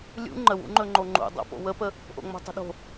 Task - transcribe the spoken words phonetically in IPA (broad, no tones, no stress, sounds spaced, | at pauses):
lʲ ṵ ŋ͡ǃ ə w ṵ ŋ͡ǃ ɵ ŋ͡ǃ o ŋ͡ǃ ṵ dˤ o̰ p o̰ w ə p ə | ʔ o̰ ŋ͡m o̤ tˤ ə̤ ɗ o̤